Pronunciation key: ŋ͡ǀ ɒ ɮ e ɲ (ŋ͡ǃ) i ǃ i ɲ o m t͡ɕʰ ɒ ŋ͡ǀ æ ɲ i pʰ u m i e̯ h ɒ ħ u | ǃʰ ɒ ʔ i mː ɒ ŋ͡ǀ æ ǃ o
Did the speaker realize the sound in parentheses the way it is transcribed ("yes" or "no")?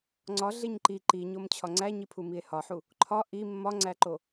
no